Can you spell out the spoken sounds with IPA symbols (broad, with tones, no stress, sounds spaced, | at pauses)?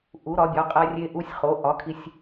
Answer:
ʔ u˩˥ ɾ ɒ˩˥ bʲ ɒ˩˥ qʼ æ˧ rʲ e˧ ʔ u˧ sʲ χ o˩˥ ʔ ɒ˩˥ kʰ i˧ sʲ